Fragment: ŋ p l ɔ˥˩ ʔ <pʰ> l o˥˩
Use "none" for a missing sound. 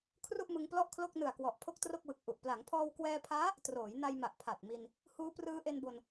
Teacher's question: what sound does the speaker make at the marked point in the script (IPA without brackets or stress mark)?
kʰ